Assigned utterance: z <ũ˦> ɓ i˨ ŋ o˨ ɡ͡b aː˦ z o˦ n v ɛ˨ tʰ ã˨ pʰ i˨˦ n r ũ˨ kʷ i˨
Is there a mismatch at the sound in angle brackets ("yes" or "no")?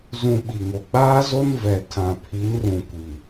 yes